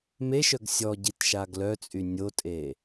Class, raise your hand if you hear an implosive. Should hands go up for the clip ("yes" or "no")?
no